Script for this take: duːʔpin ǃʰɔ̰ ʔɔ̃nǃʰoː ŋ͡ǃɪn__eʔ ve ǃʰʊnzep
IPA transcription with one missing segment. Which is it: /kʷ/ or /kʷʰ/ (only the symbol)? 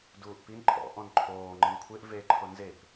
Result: kʷʰ